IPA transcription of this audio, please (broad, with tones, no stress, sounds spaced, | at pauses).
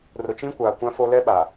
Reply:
r ʊ˨ t͡ʃ ĩ˦ kʷ aː˨ kʷ ã˦ f o˦ l ɛ˦ ɓ a˨